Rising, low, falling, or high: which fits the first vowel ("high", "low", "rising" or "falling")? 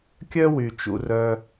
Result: high